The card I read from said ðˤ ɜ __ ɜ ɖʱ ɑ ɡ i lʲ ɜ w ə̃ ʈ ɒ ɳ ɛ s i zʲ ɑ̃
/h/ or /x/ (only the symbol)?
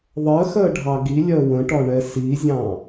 x